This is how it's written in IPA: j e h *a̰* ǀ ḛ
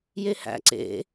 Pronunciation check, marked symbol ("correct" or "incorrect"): incorrect